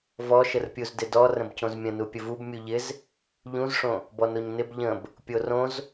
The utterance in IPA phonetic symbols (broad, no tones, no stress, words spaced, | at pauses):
vɔʃərpʲuz dɪdɔ rə̃bcõzmʲə̃nu pʲəvub mʲuʎɪz | ʎũzʂõ | bɔnoɲnɪb ʎə̃b | pʲorõz